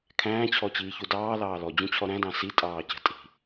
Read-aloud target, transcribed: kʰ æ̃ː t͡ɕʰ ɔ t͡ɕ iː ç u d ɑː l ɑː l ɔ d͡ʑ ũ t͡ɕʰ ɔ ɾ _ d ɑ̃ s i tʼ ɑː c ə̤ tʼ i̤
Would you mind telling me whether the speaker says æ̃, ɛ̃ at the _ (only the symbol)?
æ̃